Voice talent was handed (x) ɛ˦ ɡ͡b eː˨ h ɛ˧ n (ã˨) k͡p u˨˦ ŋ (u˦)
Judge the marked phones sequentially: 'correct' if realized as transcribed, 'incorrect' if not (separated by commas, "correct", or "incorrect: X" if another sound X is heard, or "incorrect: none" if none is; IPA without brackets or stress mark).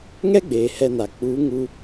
incorrect: ŋ, incorrect: a˨, incorrect: u˧